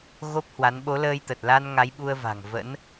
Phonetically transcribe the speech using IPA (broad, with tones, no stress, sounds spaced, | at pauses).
ɣ o˦˥ p̚ h w a˨˦ n ɓ o˨˦ l əː˧ j t̪ ə˨˩ t̚ l a˧ n ŋ a˨˦ j ɓ u˧ ə̯ v a̤˨˩ ŋ v ə̰˧˥ n